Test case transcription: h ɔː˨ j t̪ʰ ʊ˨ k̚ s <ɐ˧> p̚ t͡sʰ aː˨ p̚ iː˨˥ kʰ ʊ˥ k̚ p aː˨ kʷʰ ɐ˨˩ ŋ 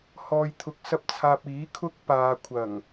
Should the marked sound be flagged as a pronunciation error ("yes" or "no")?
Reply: no